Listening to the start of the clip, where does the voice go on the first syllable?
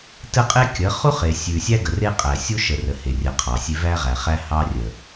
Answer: high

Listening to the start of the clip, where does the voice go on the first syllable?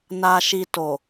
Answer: low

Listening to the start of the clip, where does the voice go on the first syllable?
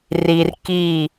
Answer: low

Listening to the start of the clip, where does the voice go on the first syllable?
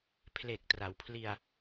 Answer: low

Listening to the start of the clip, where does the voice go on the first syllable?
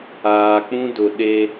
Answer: low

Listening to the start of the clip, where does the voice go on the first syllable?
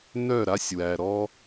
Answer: falling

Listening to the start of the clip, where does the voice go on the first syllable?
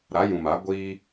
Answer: rising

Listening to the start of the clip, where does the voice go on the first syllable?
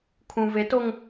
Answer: low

